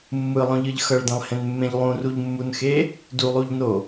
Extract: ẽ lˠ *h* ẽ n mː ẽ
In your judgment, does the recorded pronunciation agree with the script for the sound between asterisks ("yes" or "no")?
yes